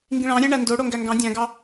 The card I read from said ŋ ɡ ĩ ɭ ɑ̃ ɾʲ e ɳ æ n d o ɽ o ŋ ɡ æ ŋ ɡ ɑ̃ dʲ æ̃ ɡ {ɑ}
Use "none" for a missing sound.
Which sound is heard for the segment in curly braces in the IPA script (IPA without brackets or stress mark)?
ɑ